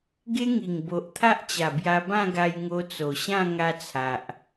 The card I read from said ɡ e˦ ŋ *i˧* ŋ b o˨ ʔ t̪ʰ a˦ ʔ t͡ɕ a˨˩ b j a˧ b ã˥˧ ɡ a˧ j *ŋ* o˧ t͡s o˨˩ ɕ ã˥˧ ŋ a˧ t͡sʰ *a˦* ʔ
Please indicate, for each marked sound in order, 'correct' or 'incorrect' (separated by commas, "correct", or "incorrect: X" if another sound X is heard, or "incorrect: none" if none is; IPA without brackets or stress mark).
incorrect: i˨˩, correct, incorrect: a˨